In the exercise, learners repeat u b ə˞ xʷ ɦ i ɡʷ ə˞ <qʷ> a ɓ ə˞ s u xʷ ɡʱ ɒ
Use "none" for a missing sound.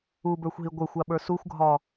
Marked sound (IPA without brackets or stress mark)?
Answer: xʷ